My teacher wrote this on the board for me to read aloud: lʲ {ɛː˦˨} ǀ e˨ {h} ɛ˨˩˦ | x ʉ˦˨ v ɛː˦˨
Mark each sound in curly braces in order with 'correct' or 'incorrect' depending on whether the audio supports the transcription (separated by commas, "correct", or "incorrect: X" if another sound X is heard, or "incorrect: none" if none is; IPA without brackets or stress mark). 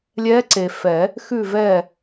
incorrect: ɛː˧˥, incorrect: f